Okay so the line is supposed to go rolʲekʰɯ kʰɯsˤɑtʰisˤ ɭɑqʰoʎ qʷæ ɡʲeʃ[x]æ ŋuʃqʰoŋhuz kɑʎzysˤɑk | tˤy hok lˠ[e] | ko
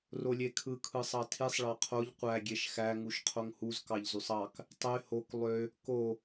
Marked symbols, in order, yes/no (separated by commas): yes, no